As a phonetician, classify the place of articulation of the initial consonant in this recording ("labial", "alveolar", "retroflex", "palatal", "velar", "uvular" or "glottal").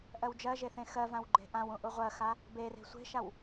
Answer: glottal